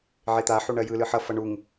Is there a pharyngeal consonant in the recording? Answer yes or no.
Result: yes